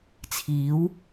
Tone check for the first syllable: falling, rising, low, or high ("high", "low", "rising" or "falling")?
rising